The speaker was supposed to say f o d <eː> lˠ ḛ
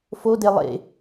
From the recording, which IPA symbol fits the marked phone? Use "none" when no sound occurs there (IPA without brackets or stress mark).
e